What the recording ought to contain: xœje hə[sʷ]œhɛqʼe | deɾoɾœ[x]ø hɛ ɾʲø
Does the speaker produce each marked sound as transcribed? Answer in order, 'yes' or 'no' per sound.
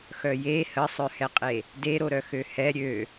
no, yes

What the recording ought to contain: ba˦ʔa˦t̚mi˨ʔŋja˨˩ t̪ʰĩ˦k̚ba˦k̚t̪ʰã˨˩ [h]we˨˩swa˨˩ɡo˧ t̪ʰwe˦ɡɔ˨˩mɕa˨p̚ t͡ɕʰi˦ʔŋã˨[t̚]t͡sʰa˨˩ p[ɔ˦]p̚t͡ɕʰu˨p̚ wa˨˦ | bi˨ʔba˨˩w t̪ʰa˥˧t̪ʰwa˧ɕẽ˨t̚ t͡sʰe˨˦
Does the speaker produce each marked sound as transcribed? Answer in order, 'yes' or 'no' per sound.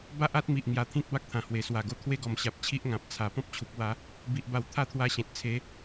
yes, no, no

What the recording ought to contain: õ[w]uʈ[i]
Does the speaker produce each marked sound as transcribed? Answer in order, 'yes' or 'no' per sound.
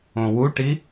yes, yes

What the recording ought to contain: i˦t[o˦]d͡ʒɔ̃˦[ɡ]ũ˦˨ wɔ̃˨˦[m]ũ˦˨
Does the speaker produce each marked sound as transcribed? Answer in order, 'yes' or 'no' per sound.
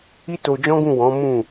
no, yes, yes

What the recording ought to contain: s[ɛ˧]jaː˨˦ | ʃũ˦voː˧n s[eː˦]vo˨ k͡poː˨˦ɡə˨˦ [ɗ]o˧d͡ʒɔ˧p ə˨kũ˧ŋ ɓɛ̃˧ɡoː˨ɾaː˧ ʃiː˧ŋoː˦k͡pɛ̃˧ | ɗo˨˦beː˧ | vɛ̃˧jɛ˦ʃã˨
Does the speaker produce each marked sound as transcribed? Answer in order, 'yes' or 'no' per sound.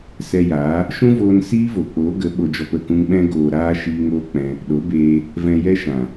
yes, no, no

